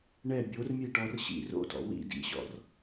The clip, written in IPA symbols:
ɳɛ bʲormʲeʈɔr ɕḭ ro̰tɔ̰ wḭ dḭɕɔ̰r

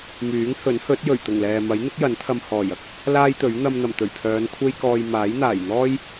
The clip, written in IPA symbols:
myː˨˥ŋhɵ˨˥nhɵ˨˥t̚ jɵ˨˩ɥt̪ʊ˨˩ŋlɛː˨ mɐ˨˥jn̪ɪ˥k̚ jɐ˨˥nt̪ʰɐ˧m hɔː˨˩j ɐ˧k̚ | laː˥jt̪ɵ˨˥ɥ n̪ɐ˧mn̪ɐ˨˩mt̪ɵ˨˩ɥpʰœː˨˧n kʷʰe˥jkɔː˧j maː˨˥jn̪aː˨˩j n̪ɔː˥j

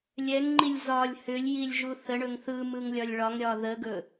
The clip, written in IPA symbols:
lʲɛŋŋ͡ǃilʲ zɒlʲ hʏlʲjilʲ ʒuθəɳɵŋ θɯmɯŋlʲɒlʲ ɭɒŋɾʲɒ ðəɡɵ

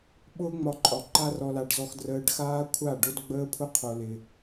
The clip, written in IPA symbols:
ɓʊː˦ŋ͡mɒ˧ǃʼɒ˨ ǃa˦ rɔ˧la˧ɖ zɔ˧xdrəː˧ɖ xaː˦kʷʰa˦˨ɖo˦d ɡ͡bəː˦pʰʊ˦qʰo˧lɪ˧

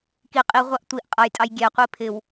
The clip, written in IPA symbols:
ki qʼi ʁʷɑʔtʷiʔ qʼʌjtʼɑj ɡʲɛqʷi pʰɪw

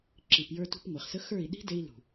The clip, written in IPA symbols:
ǁi˨pjə˞˧tṳ˧p ŋʷe˨χsə˦ xə˞˦˨i̯ ɗi̤˦de˧i̯ lṳ˨

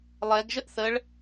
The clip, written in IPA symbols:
lˠɛɡʒəʔ θəɭ

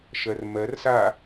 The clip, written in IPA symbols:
ʃɜrmɜr sa

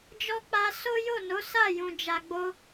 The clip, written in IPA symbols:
d͡ʒɔ˧ k͡pa˧ so˦jo˦˨no˨˦ sa˦˨jũ˨ d͡ʒa˨ɡ͡bo˧

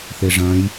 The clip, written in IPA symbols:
θeʐɐ̃j

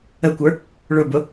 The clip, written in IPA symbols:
əkʷə˞ | ɭʊbʊ

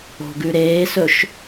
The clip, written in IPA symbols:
o̤ɡʉɾeːsɵʃ

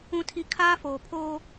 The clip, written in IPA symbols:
ũ˨tʰi˨ kʰaː˦foː˨ pʰoː˦

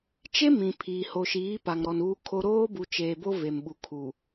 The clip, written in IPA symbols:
t͡ʃe˦ mĩ˨ pʰiː˨ ho˨ʃiː˨˦ pa˨ŋɾɔ˨n uː˦kʰo˦ ɾoː˦bu˨ t͡ʃeː˨bo˦ ve˨mɓu˨kʰu˨

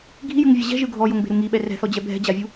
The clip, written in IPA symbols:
ɡʱijɯŋvʲɛ ʑɛ̤ʒɯ ɡʱɔjoŋbe̤ɾu ŋiɓɛ rɛ̤θɔd͡ʑɛ bʱɛ̤d͡ʑavʲu

